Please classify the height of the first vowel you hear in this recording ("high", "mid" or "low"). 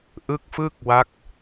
high